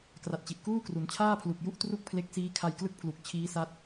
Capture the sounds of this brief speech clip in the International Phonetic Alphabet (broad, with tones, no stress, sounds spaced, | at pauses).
k r a˨˩ t̚ t͡ɕ i˨˩ ʔ k uː˥˩ k r u˩˦ n t͡ɕʰ aː˥˩ pʰ l u˨˩ k̚ j u˥˩ ʔ t r u˥˩ k̚ pʰ l e˦˥ k̚ s iː˦˥ kʰ a˧ j k l ɯ˥˩ k̚ pʰ l u˨˩ k̚ t͡ɕʰ iː˦˥ s a˦˥ t̚